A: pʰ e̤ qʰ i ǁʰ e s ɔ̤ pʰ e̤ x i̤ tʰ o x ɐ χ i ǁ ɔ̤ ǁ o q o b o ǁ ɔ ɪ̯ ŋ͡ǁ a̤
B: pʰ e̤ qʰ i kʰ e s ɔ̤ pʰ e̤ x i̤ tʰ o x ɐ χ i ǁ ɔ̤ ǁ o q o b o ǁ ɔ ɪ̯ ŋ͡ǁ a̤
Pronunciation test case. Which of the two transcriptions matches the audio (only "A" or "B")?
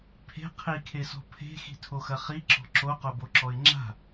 B